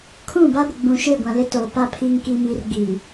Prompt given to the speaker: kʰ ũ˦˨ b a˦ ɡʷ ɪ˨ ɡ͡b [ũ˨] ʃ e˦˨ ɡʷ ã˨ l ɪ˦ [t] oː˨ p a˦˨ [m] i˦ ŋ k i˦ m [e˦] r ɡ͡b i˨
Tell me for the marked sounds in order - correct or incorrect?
correct, correct, incorrect: pʰ, incorrect: i˦

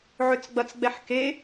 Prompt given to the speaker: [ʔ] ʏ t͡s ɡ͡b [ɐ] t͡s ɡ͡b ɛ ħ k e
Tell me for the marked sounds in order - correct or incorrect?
incorrect: ʕ, correct

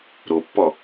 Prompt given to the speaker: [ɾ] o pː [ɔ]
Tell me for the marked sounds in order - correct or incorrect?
correct, correct

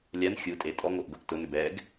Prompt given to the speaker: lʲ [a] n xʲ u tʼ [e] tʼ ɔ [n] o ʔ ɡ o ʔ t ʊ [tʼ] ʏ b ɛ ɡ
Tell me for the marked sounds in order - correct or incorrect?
correct, correct, incorrect: ŋ, incorrect: n

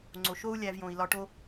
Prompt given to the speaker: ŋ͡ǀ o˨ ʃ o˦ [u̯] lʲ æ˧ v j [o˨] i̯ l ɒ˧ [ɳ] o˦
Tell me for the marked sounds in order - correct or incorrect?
correct, incorrect: õ˨, incorrect: ʈ

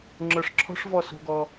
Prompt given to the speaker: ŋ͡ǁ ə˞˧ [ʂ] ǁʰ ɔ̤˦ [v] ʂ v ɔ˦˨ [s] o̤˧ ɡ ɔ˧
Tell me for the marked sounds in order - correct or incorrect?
correct, incorrect: none, correct

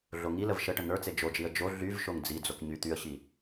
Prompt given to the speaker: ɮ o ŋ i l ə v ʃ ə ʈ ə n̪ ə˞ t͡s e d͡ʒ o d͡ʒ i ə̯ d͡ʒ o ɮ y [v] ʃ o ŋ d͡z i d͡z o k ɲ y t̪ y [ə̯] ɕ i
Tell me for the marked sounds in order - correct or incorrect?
correct, correct

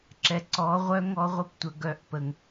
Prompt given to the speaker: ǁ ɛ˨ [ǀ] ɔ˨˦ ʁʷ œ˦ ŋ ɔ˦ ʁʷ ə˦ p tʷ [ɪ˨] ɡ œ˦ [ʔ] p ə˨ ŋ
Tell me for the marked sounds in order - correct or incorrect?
correct, incorrect: ə˨, correct

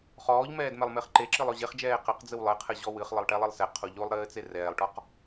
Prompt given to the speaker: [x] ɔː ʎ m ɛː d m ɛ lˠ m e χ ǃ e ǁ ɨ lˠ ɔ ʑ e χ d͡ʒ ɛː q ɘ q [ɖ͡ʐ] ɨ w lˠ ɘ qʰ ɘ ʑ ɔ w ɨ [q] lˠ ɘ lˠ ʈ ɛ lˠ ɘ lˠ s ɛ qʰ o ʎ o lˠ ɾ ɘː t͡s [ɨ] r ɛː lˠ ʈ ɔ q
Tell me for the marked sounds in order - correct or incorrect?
incorrect: χ, incorrect: d͡z, incorrect: χ, incorrect: e

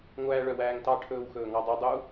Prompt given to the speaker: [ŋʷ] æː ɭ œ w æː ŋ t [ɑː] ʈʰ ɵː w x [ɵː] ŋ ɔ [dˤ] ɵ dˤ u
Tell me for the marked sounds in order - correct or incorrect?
correct, incorrect: ɑ, correct, correct

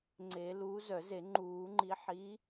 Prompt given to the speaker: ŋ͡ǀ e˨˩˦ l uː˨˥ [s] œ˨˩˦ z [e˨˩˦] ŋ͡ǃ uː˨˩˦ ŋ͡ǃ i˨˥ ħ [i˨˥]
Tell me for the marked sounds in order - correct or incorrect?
incorrect: z, correct, correct

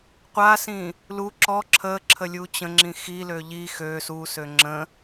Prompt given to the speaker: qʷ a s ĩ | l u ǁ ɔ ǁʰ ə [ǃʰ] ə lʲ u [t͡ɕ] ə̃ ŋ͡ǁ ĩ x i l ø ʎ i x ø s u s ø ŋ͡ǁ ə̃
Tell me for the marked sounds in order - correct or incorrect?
incorrect: ǁʰ, correct

